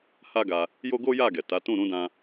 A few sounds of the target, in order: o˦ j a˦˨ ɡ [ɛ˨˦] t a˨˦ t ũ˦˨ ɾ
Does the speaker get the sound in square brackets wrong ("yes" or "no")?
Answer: yes